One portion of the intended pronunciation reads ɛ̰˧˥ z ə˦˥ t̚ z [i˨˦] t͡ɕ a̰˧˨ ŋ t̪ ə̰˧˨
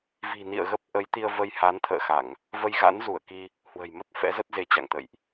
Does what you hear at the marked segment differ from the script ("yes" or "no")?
yes